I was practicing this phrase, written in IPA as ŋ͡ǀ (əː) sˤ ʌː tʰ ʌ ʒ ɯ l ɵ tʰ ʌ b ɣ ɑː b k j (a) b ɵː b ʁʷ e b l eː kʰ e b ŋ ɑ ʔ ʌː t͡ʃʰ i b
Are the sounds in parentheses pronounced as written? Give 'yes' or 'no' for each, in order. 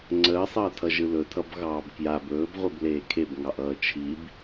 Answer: yes, yes

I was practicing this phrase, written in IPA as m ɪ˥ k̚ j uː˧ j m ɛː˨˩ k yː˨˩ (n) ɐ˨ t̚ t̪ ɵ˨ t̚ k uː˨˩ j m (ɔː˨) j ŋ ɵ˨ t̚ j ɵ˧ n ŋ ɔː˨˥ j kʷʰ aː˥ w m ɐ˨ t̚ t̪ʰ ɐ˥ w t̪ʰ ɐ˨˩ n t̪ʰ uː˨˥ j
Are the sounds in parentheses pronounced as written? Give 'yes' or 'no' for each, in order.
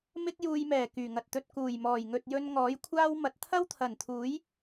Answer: no, no

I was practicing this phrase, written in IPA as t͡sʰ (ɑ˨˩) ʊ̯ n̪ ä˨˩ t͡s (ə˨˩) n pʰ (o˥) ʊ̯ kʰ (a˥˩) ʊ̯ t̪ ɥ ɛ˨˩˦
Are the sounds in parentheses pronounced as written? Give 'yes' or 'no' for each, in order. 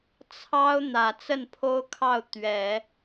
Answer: no, no, yes, no

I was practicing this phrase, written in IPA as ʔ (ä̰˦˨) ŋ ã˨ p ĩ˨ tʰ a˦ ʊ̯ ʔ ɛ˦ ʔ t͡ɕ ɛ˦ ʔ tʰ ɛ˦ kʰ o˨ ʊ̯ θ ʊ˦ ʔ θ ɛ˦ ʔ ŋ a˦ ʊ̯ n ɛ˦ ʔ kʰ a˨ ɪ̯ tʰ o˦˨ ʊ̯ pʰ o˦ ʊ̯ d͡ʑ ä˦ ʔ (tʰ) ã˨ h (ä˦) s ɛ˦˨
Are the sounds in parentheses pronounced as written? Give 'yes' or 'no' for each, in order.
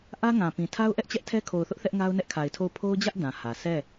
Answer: no, no, no

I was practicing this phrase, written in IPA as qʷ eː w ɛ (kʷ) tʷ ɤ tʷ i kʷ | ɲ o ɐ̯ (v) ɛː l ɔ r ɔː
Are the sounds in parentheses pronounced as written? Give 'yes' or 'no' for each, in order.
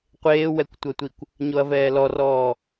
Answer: yes, yes

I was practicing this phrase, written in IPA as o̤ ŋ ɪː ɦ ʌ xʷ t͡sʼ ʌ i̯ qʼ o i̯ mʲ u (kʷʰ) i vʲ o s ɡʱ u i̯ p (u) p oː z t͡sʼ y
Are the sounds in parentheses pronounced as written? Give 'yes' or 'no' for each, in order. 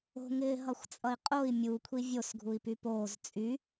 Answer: yes, no

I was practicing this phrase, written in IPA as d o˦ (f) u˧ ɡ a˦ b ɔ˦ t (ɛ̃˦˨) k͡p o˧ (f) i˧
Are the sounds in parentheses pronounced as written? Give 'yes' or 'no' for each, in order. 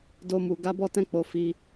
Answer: no, no, yes

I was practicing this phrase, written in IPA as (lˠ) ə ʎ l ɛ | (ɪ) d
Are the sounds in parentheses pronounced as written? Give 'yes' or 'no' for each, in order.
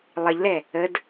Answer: yes, no

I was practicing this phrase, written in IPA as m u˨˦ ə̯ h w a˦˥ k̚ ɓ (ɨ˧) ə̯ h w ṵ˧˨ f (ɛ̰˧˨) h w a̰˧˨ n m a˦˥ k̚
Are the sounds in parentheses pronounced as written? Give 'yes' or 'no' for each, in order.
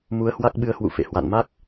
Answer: yes, no

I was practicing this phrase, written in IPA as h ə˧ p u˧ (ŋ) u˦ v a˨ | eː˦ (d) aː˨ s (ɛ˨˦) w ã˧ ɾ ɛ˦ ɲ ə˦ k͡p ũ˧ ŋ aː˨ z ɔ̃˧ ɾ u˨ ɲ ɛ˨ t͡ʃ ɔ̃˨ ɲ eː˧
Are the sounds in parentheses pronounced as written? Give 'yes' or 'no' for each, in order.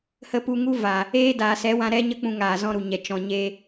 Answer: yes, yes, yes

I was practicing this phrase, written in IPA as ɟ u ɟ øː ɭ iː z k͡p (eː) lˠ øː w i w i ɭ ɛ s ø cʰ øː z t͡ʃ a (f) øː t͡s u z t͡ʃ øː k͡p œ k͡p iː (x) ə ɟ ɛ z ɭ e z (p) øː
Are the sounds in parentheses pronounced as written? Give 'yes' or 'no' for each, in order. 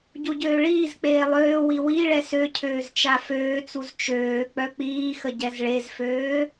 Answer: yes, yes, yes, no

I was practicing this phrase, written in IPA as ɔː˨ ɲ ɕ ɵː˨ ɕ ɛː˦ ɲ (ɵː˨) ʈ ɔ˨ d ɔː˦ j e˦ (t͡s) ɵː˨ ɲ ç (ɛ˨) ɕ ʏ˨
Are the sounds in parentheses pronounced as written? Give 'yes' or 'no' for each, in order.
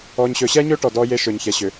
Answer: no, no, yes

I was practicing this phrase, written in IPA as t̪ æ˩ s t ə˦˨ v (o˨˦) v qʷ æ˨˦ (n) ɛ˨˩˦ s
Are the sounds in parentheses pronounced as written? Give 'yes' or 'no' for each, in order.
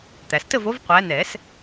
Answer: yes, yes

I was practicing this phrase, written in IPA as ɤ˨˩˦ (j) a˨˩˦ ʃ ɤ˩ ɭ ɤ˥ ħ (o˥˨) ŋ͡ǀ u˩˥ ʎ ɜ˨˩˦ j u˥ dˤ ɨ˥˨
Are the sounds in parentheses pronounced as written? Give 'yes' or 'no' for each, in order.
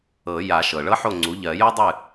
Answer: yes, yes

